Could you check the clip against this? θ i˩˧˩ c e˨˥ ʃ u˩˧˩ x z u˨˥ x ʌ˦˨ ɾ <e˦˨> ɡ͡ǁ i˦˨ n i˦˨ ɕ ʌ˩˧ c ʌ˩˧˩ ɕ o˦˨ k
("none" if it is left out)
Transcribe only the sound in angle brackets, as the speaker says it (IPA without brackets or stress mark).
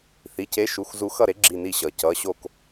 e˨˥